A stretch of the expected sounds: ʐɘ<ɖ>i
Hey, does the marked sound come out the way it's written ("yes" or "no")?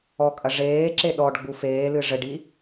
yes